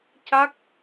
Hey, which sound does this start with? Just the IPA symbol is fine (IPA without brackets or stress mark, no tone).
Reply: c